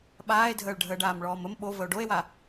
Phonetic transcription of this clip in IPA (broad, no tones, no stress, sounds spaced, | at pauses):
ɓ aː e̯ dʱ əː ɭ ɖʱ əː ɖ aː m ɭ ɔː m ə m ɓ o v ə o̯ ɖ o e̯ w a